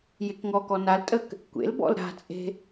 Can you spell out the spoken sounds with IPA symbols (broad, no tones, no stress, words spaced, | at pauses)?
jekŋɔkɔ naltʼək | kʷḛl bɔ̰lɾa̤t͡sʼe̤